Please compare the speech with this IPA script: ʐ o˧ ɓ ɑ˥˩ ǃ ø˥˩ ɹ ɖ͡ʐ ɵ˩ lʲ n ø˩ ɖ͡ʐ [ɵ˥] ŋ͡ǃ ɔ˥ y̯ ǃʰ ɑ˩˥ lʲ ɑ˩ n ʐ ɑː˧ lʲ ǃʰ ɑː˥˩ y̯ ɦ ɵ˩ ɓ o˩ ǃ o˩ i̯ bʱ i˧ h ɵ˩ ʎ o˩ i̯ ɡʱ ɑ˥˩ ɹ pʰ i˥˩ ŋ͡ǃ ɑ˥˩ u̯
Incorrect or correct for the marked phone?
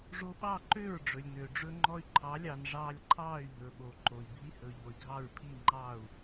correct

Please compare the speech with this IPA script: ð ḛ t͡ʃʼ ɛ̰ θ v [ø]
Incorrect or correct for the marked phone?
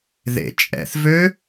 correct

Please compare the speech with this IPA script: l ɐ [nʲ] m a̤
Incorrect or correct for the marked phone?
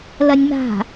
correct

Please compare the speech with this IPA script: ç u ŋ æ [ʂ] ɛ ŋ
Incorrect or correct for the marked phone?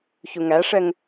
correct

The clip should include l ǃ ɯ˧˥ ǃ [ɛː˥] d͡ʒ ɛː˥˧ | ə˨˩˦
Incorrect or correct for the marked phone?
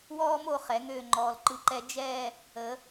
incorrect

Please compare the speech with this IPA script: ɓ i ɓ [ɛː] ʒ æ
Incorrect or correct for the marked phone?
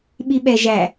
incorrect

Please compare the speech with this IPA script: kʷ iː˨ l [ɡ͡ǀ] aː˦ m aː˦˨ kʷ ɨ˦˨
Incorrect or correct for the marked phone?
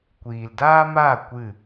incorrect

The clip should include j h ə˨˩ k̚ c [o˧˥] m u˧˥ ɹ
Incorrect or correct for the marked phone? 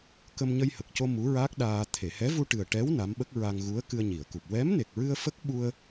incorrect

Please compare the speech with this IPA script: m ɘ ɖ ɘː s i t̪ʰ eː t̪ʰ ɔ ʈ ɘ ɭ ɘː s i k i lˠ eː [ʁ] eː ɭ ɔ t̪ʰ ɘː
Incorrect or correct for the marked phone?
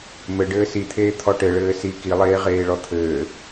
correct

